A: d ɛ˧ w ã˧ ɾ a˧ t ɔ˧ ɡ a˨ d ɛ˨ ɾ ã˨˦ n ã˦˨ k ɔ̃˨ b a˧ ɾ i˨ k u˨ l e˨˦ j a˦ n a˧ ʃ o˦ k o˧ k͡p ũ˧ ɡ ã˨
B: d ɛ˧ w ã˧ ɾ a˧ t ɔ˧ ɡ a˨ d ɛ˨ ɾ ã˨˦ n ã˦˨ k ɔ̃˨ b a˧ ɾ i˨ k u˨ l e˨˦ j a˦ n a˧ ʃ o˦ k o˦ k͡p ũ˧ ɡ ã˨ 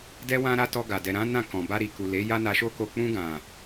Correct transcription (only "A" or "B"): A